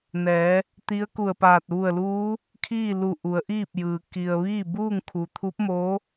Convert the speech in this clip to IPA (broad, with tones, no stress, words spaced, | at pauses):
nɛː˩˧ | t̪i˧˥ə̯ku˧˩ə̯paː˧˩t̚ ʋu˧˩ə̯luː˧˥ | kʰiː˥˨lu˧˩ ʔu˩˧ə̯ʔiː˥˨p̚jɯː˩ ki˩ə̯ ʋiː˥˨buː˥˨ŋkʰu˩t̪ʰu˧˥p̚ mo˧˥